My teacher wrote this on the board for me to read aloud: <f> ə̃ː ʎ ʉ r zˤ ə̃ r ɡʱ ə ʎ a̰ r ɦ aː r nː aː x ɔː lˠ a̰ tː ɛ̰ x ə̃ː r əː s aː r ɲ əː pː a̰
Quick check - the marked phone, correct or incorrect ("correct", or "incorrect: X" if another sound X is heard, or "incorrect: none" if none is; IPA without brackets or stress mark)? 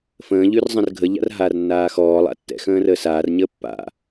correct